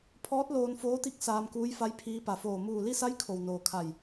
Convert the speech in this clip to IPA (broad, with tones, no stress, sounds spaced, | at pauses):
pʰ ɔː˧˥ t̚ l oː˧ n f oː˧˥ t̪ i˧˥ k̚ s aː˧ m k uː˧˥ j f a˧˥ j pʰ iː˧ p a˩ f oː˧˩ m uː˧˩ l i˥˨ s a˧˥ j kʰ o˩ w n oː˩ kʰ a˧˩ j